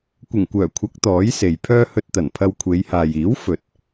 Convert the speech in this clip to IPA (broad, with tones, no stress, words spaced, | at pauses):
kʷɪ˨˩ŋkʷœː˨˩kʷʰɐ˨˥k̚ t̪ɔː˨˥jse˨jpʰœː˥ hɵ˧t̚t̪ɐ˨˩npʰɐ˧w kʷʰe˨˧jhaː˨jiː˨˥w fɵ˨t̚